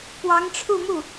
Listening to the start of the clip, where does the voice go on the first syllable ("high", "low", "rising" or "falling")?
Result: rising